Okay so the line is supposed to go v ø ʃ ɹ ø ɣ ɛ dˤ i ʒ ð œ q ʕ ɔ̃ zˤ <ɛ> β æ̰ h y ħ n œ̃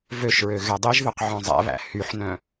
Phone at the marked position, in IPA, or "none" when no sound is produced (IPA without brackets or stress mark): ɛ̰